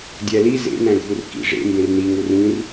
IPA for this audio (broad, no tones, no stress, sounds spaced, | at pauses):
dʲ æ l i z ḛ n æ̃ ɡʱ u r k ḭ ʐ ḛ m b ẽ r n i ŋ u r ĩ r